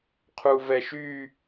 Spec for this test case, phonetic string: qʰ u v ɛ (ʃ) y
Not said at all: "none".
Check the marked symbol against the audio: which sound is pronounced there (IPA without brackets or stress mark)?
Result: ʃ